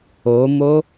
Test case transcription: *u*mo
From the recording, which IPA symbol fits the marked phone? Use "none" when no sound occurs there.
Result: o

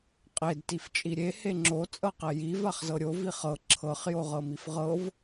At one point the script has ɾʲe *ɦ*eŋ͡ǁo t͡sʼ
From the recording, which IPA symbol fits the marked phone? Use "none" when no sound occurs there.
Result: h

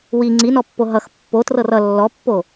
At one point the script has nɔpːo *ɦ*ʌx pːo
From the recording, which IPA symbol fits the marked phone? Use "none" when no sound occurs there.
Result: ɦ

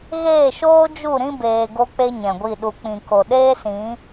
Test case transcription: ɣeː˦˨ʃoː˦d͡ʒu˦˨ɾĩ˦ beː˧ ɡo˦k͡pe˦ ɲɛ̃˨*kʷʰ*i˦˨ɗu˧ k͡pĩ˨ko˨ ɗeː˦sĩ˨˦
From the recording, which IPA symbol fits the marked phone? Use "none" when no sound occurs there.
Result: ɡʷ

